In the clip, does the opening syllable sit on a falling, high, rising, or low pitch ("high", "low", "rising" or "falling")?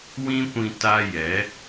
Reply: high